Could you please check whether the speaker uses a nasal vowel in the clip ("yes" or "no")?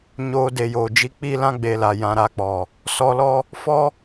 yes